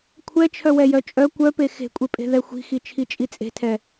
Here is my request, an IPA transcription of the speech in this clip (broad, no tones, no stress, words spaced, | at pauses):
kʷʰɛt͡ʃʰœwɛjœ t͡ʃʼœ kʷœpe xe̤kʷʼepʼe̤ðɛ xʷi̤xit͡ʃʰit͡ʃʼi t͡sʼe̤tʰɛ